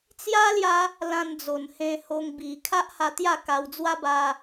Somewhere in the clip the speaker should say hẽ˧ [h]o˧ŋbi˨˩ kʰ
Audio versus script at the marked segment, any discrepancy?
no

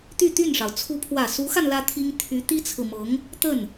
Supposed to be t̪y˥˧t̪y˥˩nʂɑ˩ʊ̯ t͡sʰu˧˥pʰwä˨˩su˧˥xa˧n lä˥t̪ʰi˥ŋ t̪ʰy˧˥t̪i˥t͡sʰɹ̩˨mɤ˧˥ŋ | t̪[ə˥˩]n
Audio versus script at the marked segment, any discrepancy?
no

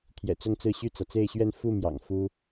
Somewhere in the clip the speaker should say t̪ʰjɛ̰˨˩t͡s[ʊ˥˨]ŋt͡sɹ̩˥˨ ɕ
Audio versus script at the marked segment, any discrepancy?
no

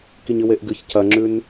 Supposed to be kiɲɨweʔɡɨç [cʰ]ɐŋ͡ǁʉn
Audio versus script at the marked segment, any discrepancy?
no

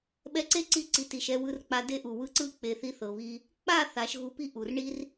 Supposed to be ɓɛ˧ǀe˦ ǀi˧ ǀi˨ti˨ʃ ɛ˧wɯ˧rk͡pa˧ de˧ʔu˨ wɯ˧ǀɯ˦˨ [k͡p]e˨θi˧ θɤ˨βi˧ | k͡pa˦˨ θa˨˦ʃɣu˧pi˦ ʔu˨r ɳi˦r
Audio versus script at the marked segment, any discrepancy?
no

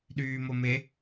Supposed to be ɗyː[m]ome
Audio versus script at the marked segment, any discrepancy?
no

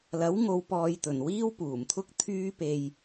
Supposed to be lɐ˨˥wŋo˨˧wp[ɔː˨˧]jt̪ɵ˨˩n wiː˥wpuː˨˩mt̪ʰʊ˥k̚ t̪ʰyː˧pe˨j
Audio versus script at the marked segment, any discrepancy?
yes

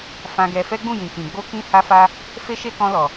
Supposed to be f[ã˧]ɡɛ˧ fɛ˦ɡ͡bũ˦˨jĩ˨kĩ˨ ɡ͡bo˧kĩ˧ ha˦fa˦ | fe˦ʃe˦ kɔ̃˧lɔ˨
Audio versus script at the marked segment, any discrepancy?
no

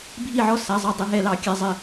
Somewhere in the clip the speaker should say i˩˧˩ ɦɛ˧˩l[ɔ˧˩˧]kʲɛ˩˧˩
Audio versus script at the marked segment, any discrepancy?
yes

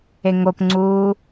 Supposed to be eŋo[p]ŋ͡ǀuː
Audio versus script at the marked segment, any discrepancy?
no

